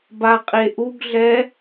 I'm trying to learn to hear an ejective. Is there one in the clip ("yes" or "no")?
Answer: yes